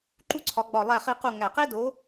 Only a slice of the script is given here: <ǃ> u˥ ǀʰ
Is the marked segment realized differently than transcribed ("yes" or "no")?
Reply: no